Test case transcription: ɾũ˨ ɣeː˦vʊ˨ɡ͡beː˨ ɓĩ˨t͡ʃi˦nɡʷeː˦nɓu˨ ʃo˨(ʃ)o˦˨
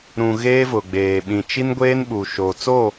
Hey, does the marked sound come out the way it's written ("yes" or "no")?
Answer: no